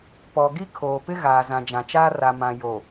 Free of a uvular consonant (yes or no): yes